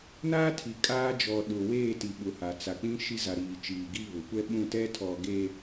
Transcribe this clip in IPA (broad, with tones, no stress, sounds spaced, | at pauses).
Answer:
n aː˦ tʰ i˨ kʼ aː˦ d͡ʒ ɔ˨ ɗ ʊ˨ w eː˦˨ t i˨ ɓ ʊ˨ h a˨ t͡s a˨ k͡p ĩ˦ ʃ i˦ z a˨ ɾ iː˨ t͡ʃ iː˨ ɡ i˦ β ʊ˨ kʷ ɛ˦ ɓ ũ˦˨ t ɛ˦ tʰ ɔ˨ ɡ e˨